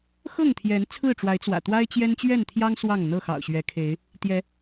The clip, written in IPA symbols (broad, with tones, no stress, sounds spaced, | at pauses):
x ɤ˥˨ ŋ t̪ʰ j ɛ˨˦ n t͡sʰ ɹ̩˥˨ ʈ͡ʂ w a˨˦ ɪ̯ t͡s w ä̰˨˩ t̪ w a˦ ɪ̯ t͡ɕ j ɛ˦ n t͡ɕ ɥ ɛ˥˨ n t̪ʰ j ɑ˦ ŋ s w ɑ˥˨ ŋ n̪ ɤ˥˨ x ɑ̰˨˩ ʊ̯ ɕ ɥ ɛ˨˦ kʰ e˨˦ ɪ̯ | t̪ j ɛ˨˦